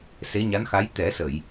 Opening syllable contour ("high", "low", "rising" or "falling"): rising